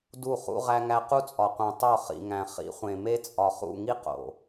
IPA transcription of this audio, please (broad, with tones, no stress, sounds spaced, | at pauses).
d u˦˨ χ ṵ˦ ʁ æ˦ ŋ æ˦ q u˦ t͡sʼ ɒ˨ qʷ ẽ˨ tˤ o˦˨ χ ḭ˨ ŋ æ̃˨ χ ḭ˨˦ χʷ ẽ˨ m e˦ t͡sʼ ɒ˨ χ ṵ˦˨ ŋ i˦ q o̰˨